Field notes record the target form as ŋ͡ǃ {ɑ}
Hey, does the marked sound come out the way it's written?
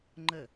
no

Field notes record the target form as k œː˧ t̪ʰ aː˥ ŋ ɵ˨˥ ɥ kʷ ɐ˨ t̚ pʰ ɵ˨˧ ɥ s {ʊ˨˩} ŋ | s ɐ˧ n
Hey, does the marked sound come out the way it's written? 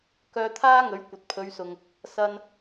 no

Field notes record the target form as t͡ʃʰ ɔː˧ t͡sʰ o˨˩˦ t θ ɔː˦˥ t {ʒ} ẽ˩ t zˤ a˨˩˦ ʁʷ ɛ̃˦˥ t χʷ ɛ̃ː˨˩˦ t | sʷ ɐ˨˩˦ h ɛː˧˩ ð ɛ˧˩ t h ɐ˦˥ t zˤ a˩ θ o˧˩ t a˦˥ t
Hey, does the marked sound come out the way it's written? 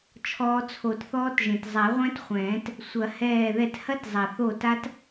yes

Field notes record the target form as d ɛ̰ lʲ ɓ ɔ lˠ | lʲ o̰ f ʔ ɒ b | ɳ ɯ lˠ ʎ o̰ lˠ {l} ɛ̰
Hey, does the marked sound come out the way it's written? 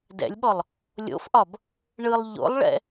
no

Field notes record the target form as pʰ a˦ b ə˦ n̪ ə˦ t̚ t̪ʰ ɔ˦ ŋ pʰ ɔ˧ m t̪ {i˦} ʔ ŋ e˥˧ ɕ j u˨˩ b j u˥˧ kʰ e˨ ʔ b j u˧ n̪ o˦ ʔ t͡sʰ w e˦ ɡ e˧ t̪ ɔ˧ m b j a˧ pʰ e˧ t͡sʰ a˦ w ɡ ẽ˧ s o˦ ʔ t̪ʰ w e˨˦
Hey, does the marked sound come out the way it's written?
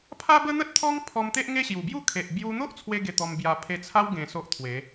no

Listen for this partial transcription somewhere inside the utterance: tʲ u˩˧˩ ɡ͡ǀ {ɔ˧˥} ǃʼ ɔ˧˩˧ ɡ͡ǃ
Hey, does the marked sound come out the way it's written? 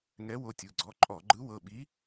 no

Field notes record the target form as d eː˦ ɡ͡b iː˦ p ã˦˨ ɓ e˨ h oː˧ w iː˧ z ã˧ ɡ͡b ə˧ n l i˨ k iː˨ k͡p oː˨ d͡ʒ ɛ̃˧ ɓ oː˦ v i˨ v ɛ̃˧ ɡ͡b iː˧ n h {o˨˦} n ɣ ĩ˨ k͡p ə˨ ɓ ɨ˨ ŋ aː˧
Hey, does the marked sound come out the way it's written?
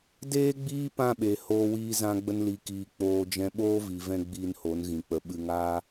yes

